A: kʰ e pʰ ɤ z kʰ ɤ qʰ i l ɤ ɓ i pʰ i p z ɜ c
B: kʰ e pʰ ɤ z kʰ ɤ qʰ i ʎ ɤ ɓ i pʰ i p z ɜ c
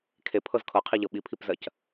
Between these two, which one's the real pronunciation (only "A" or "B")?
B